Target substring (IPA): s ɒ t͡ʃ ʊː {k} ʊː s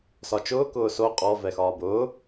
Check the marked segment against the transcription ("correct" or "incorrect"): correct